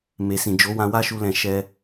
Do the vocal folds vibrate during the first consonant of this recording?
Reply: yes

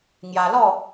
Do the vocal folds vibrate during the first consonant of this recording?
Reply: yes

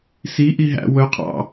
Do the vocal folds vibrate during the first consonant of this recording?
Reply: no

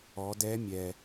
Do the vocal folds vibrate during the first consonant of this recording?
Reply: yes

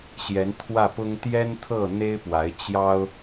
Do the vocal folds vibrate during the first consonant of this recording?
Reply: no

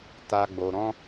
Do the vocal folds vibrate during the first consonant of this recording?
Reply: no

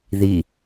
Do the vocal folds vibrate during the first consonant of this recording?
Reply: yes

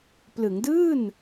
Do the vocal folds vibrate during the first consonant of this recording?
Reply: no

